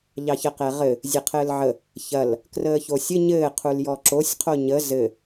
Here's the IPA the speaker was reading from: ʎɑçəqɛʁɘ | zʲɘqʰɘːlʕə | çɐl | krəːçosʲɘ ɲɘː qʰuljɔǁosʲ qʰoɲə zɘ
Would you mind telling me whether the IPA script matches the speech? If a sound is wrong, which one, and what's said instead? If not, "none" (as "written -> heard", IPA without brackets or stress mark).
none